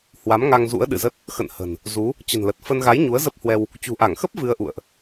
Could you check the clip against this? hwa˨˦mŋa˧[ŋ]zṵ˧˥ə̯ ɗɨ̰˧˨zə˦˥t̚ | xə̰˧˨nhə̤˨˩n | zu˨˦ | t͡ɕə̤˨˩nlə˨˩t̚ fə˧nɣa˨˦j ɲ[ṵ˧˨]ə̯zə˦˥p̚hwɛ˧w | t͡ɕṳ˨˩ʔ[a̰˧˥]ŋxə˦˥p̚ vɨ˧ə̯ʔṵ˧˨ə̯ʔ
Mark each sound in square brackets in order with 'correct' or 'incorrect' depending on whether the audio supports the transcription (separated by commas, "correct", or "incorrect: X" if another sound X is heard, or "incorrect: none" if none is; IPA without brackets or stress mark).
correct, incorrect: u˨˦, incorrect: a˧˩